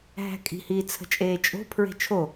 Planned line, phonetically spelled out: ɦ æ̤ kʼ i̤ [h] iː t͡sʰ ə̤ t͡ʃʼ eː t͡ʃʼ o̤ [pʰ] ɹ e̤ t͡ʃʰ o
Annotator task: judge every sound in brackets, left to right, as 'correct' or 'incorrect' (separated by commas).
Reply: correct, correct